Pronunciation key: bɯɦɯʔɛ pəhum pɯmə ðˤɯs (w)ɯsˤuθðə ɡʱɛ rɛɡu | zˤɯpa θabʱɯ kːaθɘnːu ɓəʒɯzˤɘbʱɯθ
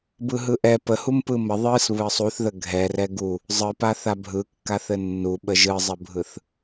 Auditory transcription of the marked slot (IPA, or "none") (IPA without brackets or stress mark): β